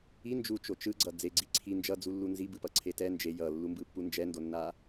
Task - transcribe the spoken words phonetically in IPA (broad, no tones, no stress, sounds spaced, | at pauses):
i n d͡ʒ u t͡ʃ o t͡ʃ ɯ ɡ͡ǀ ʌ d͡z e ɡ͡ǀ i ǀʰ i n d͡ʒ ʌ d͡z u lː u n z i b ɯ p ʌ ǀʰ e t ɛ n d͡ʒ e j ʌ lː u m b ɯ pː u n d͡ʒ ɛ n d o nː a